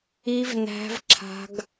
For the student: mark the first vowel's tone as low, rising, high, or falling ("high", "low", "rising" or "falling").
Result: high